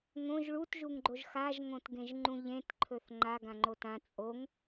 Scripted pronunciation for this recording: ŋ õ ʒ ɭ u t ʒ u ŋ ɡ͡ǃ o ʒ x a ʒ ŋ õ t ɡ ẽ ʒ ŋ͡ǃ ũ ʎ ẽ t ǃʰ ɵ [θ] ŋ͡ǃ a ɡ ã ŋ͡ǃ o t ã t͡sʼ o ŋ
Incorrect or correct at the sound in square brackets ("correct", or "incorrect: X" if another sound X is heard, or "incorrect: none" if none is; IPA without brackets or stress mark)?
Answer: correct